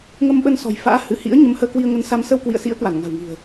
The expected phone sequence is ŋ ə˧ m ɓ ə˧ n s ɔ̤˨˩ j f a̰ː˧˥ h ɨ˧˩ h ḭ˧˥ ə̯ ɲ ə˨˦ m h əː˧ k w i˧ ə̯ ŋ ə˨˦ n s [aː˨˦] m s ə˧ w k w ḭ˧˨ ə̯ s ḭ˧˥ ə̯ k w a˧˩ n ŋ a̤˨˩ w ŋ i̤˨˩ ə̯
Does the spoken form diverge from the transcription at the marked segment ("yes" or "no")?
yes